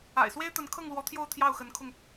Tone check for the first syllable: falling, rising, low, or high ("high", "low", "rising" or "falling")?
low